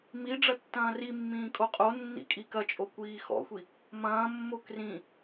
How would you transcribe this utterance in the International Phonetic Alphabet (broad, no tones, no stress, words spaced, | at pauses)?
mi ɖ͡ʐɐtːɐ̃ːrimːĩː kʼoqʼonːḭ kʼikɐt͡ʃʼo kʷiːxɔ̰xʷi | mɐ̃ːmːo krĩ